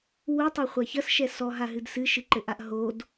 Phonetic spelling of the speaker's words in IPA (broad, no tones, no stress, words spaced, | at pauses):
wutˤɛχʷa çɐsʃɛ sɔɦaɦɨd sɨʃɨǃɘʔaʔ ɦod